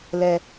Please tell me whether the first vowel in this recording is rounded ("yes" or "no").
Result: no